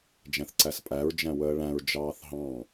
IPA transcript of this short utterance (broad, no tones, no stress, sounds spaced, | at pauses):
d͡ʒ æ̃ θ ǀ æ s pʼ æ ɹ d͡ʒ æ̃ w əː ɭ æ̃ ɹ d͡ʒ ɑː θ ɦ ɑ̃